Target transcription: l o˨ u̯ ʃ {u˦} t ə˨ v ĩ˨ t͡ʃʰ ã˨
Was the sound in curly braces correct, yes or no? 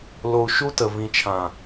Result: yes